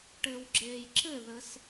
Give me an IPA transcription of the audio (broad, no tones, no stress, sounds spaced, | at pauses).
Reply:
ʈ ɘː w ɡ͡ǁ eː j ǁ ɘ ð ə s